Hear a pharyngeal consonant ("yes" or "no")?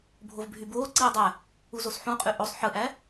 yes